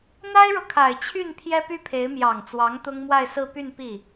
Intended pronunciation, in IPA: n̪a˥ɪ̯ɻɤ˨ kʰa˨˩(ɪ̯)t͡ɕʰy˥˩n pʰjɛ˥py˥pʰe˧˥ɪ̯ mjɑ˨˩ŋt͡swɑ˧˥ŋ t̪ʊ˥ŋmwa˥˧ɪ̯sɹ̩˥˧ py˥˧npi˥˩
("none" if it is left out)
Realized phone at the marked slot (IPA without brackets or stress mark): ɪ̯